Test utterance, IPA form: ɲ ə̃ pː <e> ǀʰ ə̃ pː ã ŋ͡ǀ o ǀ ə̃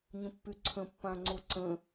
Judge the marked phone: incorrect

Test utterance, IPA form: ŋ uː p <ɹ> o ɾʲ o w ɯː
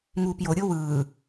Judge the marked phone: incorrect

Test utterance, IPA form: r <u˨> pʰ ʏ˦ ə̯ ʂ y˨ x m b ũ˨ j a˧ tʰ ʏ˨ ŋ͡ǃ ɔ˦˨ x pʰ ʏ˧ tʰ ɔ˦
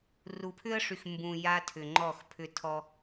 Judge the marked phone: correct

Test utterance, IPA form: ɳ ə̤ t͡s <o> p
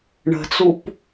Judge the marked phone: incorrect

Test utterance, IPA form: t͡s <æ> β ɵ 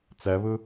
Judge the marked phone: correct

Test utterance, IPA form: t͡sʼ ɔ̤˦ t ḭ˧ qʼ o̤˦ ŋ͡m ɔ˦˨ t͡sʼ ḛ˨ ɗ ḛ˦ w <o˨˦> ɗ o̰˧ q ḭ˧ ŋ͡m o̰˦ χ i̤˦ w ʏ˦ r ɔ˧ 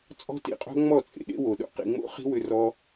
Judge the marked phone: incorrect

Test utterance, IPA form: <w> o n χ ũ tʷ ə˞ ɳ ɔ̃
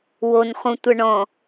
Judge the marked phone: correct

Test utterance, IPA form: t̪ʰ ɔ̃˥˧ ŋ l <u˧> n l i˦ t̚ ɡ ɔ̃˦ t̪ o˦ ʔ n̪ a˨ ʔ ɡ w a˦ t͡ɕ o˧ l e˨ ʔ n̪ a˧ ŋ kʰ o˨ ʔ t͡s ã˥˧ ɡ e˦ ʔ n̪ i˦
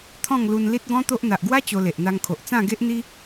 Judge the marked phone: correct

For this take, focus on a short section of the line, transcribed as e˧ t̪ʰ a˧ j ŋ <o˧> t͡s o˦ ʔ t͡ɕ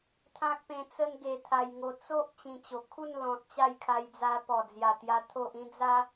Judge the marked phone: correct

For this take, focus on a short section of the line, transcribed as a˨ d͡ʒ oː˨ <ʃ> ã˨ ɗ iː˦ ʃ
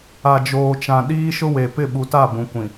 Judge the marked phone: incorrect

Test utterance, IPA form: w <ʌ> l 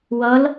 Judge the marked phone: correct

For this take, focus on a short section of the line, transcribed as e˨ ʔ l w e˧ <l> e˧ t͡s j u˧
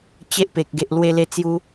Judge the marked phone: correct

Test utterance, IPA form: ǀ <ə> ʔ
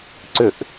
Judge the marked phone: incorrect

